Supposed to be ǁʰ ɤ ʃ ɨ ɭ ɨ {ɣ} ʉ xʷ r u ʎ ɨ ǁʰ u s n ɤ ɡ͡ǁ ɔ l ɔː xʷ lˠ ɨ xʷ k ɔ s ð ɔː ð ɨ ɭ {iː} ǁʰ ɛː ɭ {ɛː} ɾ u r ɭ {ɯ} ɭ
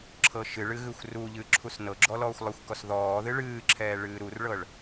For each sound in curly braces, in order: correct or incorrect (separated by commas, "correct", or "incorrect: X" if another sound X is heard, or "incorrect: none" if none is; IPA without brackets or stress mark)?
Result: correct, incorrect: ɨː, incorrect: ɨː, incorrect: ɤ